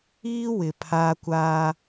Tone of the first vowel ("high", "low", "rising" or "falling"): high